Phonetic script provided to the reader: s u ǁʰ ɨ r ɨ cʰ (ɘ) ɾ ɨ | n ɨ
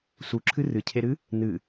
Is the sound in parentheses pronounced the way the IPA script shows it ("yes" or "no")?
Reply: no